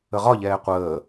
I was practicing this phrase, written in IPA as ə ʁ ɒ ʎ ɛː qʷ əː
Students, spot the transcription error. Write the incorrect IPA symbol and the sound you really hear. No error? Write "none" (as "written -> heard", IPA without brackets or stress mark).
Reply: none